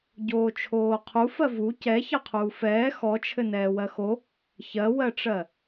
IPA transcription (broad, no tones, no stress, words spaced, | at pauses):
ɟoːt͡ʃʰoːqʰufɜ vu cɛ çɑqʰuːfɛː xɔt͡ʃʰɘ nɛːwɜxo | çɜwɜʈ͡ʂɜ